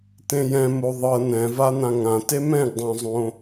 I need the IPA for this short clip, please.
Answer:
tẽjɛ̃ moðˤɤ nɛ̃va n̪ãŋãte mɛ̃ɡdˤõzˤõ

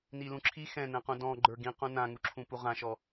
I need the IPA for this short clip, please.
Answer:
nilũǁʰi xɛ̃nɛ̃qũ dɔ̃ ɡ͡ǃə˞ɡĩ qũnãŋu ǁʰũpuʁãʃɔ

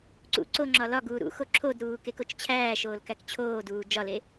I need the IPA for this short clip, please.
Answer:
ǀṵ ǀo ŋ͡ǁɒlɒɡuː ɾṵxo ǁʰodɾuː kekot͡ʃt͡ɕʰæːʃoːl kækt͡ɕʰoːduː d͡ʒɒle

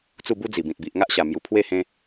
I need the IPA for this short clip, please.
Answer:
t͡su˥˧bu˦d͡zi˨˩bĩ˨t̚ bi˨ʔŋa˦ʔɕa˨˩mju˨˩ pʰwe˥˧hẽ˧

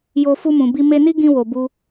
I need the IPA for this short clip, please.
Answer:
jo˧ fu˧mũ˨bi˧ me˧ni˦ɡĩ˧wo˨ bu˧

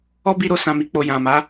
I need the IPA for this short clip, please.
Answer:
ɔ˦bi˧ɾo˧ sã˨mi˨ k͡po˨jã˨ma˨˦

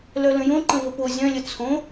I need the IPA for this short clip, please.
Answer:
lœlə̃jõ ǃə̃vəpo zʲœ̃lʲə t͡sʰõ

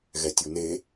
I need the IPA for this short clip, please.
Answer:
ɣɛtʲune

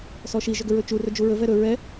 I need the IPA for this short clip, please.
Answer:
sɔʃi ʒɵɡɵɹɵt͡ʃu rɵd͡ʒuɹɵ vɛɾɵ ɹɛ

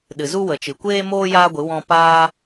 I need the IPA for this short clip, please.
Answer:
ɗɨ˨zu˦wə˨t͡ʃɨ˨ kʷeː˦moː˦ jaː˦ɡʷɨ˨˦ wɔ̃˧ paː˦

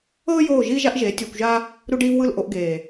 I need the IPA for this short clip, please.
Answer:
ɤː˦ joː˦˨ʒiː˦ ʒa˦ʔʒeː˨˦ tʲoː˧kʷʒa˦ | ɾu˧ɖiː˧v wɯ˦˨lʔo˧ʔɡeː˨

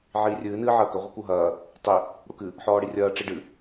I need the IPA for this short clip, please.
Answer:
ʕiːrʲɨː nɨːʕɐːkɐ ʁʷɐkuɦɐː | tˤi | ɽukɨ | ħɔːɽirʲɐː ʈ͡ʂiɖɨ

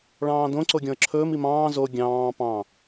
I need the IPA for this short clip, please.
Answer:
ɭɑ̃ːdõ ǀoɡʲɔ̃ə̯ǁʰɵːm imɑ̃ː zo ɡʲɑ̃ː pɑ̃

